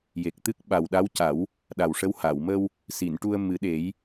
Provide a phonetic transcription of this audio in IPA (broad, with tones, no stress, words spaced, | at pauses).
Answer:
je˨˩k̚t̪ɨ˦˥k̚ ɓa˨˩wɗa˧˥wca˨˩˦w | ɗa˨˩wʂə˧˥w ha˨˩˨w mə˧w | si˨˩˨n ʈu˧ə̯mɨ˨˩˦ɗe˨˩˦j